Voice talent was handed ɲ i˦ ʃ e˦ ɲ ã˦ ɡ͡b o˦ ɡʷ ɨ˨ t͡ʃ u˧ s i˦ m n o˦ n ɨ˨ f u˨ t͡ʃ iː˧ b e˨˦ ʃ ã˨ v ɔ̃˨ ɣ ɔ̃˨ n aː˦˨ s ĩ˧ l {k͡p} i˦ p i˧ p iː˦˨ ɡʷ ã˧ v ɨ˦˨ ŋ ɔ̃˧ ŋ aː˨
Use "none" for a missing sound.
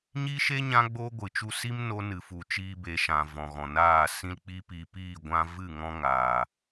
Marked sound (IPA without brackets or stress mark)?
k͡p